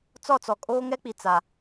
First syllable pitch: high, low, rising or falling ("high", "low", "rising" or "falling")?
falling